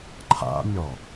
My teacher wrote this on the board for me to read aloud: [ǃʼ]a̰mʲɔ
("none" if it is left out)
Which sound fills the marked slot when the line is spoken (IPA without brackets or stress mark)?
ǃʰ